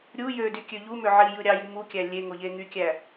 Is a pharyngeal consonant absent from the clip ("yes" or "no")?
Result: no